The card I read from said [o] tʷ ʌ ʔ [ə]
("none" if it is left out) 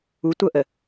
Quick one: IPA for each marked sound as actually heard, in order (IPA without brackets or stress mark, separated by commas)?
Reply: u, ə